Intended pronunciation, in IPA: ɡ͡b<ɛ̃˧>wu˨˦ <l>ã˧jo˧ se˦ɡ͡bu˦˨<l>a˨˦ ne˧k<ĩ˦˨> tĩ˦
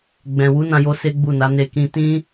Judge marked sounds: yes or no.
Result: no, no, no, no

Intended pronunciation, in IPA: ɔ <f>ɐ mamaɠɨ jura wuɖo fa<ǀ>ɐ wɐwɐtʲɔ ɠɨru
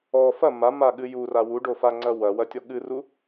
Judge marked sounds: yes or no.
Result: yes, no

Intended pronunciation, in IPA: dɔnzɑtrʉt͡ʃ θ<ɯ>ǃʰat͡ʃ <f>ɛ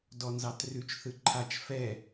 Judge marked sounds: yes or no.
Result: yes, yes

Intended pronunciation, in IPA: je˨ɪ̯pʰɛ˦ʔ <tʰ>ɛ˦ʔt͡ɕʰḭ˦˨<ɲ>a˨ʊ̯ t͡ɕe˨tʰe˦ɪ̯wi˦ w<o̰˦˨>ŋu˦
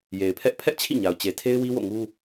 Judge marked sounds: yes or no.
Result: no, yes, yes

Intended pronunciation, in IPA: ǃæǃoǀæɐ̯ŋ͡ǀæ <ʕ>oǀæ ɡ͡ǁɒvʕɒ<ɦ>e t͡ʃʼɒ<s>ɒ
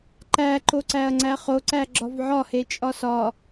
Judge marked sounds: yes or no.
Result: no, no, yes

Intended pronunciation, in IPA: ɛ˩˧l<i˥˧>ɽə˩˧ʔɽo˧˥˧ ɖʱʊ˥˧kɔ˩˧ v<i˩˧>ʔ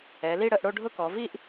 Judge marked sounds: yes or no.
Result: yes, no

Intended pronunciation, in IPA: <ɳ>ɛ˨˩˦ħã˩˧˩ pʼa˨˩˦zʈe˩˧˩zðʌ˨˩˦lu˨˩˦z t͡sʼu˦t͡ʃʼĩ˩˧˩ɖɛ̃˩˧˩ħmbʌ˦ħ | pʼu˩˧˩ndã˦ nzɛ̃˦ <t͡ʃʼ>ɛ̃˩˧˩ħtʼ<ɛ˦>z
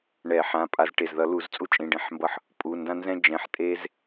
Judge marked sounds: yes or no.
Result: yes, no, no

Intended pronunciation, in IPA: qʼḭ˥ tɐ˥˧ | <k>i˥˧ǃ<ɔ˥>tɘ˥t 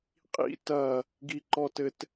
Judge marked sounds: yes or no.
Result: no, yes

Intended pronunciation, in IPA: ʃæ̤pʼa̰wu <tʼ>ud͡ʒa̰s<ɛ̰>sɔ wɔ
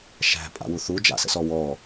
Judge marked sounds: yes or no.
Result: no, no

